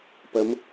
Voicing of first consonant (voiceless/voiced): voiceless